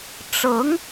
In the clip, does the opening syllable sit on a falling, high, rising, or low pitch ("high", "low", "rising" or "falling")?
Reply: rising